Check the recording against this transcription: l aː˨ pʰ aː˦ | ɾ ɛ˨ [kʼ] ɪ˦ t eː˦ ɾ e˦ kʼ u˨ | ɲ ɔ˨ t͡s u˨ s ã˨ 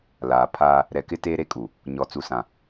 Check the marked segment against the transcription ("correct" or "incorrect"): incorrect